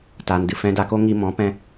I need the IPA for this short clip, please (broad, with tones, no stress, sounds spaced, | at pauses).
t aː˧ n d ɨ˧ f ɛ̃˧ d a˧ k o˦ ŋ i˧ m ɔ̃˨˦ p ɛ̃˧